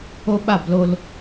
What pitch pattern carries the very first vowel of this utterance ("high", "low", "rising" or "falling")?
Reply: high